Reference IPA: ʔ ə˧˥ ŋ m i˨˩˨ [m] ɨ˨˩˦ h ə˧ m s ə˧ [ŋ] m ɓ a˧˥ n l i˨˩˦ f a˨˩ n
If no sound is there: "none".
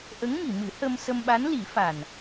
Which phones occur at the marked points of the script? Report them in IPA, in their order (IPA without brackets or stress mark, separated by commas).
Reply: m, none